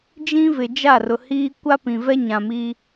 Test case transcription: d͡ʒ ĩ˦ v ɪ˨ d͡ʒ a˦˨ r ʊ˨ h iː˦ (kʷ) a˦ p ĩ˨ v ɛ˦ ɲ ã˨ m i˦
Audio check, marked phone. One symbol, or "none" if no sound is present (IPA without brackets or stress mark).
kʷ